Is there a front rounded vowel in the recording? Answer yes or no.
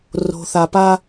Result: no